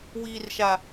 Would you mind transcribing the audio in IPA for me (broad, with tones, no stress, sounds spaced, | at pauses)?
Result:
w iː˨ r ʃ a˨